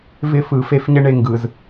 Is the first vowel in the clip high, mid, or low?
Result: high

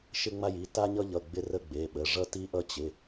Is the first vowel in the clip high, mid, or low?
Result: high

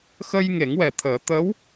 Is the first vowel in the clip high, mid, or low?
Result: mid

